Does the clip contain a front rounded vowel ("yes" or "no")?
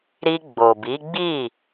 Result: no